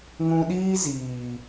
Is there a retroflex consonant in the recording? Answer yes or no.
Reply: no